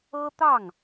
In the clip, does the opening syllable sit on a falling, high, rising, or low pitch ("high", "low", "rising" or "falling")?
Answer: high